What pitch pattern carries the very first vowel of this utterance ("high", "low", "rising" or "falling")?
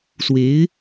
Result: rising